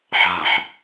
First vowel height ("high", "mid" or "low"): low